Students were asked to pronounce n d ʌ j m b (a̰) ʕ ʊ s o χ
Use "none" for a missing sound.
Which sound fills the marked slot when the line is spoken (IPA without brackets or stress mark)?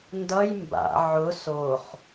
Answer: a̰